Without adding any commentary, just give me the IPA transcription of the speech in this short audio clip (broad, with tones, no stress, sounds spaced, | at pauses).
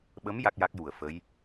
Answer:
ɓ ə˧˥ m j a˦˥ k̚ j a˦˥ k̚ j u˨˩ ə̯ f ə˧˥ j